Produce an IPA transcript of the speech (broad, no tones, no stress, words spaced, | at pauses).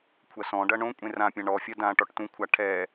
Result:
kʷʰɐsɔ̃ɖɐ ɳõ kʷʼẽrãpʲã ɳɔfʲɐ dã ʈɔʈtũkʷʰa ʈʰɛ